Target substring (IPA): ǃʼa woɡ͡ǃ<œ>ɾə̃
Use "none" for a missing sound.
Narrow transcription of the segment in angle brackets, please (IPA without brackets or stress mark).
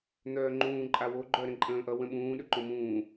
œ